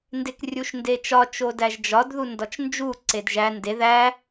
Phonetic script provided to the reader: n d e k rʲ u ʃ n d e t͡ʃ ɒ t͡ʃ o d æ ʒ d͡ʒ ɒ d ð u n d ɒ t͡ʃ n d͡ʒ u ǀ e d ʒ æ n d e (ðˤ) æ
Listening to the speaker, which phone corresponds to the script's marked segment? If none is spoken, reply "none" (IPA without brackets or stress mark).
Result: ð